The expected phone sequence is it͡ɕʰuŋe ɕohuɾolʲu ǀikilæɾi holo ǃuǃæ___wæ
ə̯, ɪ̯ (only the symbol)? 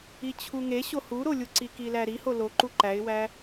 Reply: ɪ̯